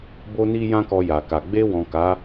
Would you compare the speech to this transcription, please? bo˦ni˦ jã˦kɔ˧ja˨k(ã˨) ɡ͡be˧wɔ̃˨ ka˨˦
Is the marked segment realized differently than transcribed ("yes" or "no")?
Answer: yes